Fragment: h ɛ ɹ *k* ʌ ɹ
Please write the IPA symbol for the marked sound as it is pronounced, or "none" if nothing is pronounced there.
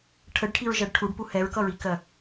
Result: k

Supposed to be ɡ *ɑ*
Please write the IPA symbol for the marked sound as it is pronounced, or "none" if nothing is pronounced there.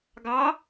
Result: ɑ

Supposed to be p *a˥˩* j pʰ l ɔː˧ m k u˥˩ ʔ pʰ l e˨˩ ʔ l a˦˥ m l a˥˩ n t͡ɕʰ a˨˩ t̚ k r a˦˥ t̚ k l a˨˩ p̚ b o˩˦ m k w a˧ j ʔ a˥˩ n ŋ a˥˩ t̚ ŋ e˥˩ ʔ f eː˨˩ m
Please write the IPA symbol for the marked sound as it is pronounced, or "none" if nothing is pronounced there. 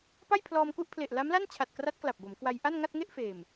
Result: a˥˩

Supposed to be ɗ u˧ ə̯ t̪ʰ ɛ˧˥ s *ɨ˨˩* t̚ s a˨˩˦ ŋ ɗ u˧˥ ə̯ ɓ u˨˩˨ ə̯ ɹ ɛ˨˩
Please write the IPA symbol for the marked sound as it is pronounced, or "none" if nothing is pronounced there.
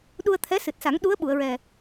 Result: ɨ˨˩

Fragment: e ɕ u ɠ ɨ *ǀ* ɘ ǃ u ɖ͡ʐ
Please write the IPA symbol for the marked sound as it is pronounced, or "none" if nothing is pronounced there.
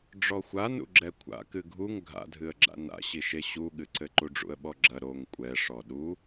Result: ǀ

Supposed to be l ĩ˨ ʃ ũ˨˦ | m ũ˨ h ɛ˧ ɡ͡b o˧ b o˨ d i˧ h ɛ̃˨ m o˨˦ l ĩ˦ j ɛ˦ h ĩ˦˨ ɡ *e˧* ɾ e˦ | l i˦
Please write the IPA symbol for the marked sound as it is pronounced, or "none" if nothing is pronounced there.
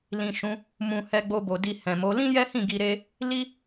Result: i˧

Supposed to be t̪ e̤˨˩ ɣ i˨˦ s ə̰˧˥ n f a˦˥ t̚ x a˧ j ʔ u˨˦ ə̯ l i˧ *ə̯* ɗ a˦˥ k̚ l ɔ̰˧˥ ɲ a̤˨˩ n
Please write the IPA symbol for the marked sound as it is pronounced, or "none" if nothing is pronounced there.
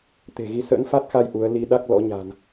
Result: none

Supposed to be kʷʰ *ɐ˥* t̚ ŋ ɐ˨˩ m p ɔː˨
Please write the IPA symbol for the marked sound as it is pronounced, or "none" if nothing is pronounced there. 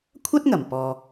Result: ɐ˥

